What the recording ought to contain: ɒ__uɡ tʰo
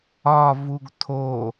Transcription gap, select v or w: v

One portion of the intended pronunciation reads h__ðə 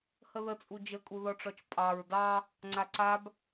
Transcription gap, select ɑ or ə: ə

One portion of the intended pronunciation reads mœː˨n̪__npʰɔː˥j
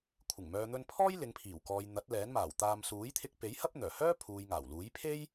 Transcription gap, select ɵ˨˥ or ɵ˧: ɵ˧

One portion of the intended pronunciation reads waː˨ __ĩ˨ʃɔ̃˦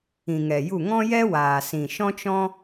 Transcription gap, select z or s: s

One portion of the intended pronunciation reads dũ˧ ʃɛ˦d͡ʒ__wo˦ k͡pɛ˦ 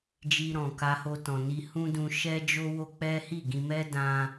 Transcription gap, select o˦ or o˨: o˦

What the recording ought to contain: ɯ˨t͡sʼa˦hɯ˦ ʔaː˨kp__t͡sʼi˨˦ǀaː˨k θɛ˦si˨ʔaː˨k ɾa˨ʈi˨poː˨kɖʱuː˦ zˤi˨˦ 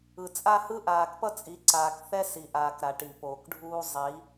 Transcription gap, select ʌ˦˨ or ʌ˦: ʌ˦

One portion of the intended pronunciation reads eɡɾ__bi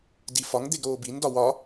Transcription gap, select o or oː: oː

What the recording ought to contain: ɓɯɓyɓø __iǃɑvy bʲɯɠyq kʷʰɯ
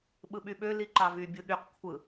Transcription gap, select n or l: l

